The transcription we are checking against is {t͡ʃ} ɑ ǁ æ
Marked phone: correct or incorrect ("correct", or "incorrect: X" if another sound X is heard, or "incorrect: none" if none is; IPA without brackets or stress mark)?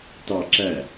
incorrect: t